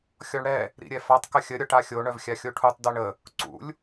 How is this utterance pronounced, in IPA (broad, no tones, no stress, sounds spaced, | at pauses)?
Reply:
xʲ ɔ ɳ ɽ ɛ | ɾ ḭ ɾʲ ɛ f a tˤ k ə xʲ ə ɾʲ ɔ ʈ a xʲ o ɳ œ v xʲ a xʲ o ʈʰ u tˤ d œ ɳ ə | ǀ ṵ lʲ